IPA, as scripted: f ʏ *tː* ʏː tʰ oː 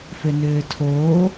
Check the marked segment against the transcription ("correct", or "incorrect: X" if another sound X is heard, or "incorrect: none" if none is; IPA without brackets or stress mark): incorrect: n